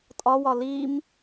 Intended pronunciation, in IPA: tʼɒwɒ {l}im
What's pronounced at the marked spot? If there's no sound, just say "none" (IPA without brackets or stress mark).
l